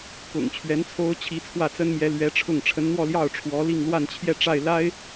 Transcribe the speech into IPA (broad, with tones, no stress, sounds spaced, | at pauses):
k ʊ̰˨˩ ŋ t͡ɕʰ ɥ ɛ˧˥ n t͡sʰ o˥ ʊ̯ t͡ɕʰ i˧˥ t͡sʰ w ä˥˩ t͡s ə˥ n m j ɛ˧˥ l ɥ ɛ˧˥ ʈ͡ʂʰ ʊ˥˩ ŋ ʈ͡ʂʰ ə˧˥ n n̪ w ɔ˥˧ l j ɑ˥˩ ʊ̯ ʈ͡ʂʰ w ɔ˧˥ l i˥˧ ŋ l w a˥˧ n t͡ɕʰ j ɛ˥˧ ʈ͡ʂ a˥˩ ɪ̯ l a˥ ɪ̯